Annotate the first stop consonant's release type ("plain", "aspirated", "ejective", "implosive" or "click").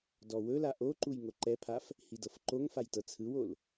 plain